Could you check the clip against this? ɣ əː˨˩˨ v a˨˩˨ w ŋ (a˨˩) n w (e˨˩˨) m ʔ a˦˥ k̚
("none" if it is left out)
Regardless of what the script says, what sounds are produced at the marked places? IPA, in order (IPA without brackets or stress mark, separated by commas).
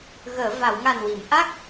a˨˩, i˨˩˨